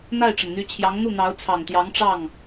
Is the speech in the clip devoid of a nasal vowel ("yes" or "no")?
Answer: yes